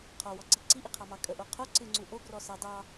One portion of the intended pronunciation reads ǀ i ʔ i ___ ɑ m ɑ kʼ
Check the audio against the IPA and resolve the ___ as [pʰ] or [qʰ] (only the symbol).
qʰ